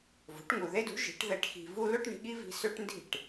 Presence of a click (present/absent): absent